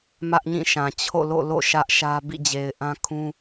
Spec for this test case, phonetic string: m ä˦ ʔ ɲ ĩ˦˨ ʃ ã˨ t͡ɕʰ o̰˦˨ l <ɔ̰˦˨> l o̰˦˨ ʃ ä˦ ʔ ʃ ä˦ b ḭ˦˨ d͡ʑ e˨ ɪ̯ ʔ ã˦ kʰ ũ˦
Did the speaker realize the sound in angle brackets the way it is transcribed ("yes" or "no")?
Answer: no